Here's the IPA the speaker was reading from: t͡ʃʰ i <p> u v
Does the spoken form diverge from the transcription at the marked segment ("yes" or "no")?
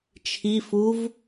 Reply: yes